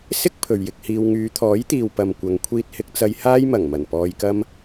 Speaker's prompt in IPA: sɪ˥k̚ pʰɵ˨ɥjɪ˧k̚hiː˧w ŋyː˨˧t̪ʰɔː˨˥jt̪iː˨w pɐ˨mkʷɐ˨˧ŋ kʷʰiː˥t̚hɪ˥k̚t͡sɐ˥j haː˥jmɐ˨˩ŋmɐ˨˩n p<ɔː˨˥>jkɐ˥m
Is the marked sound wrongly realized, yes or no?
yes